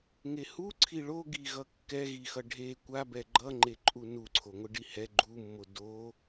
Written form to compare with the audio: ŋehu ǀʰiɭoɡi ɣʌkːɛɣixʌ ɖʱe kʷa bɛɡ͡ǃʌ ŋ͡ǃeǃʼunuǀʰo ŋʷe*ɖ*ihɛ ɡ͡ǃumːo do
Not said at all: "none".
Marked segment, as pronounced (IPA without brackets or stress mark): ɖ